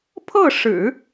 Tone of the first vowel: falling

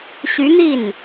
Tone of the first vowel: rising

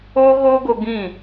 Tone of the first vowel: high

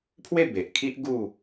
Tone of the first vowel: falling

